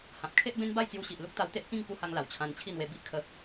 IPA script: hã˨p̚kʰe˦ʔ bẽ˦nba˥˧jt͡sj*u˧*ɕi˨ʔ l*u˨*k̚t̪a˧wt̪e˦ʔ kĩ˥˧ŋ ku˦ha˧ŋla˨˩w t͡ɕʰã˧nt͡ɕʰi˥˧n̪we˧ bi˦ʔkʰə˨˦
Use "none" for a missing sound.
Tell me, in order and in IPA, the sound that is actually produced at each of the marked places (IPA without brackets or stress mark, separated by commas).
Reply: u˧, u˦